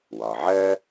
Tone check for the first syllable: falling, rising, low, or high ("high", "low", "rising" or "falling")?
low